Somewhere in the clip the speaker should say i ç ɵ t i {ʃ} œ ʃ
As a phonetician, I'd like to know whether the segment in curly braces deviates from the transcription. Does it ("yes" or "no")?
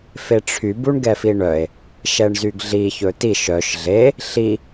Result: no